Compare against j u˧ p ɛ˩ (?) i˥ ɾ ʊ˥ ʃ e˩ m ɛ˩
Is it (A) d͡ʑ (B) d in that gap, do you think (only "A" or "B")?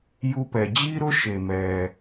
A